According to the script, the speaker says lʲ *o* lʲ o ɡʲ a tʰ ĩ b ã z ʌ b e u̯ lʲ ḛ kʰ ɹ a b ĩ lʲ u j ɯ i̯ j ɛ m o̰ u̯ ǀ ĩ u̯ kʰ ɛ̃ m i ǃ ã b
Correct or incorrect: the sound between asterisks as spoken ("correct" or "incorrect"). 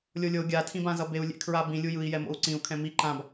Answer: correct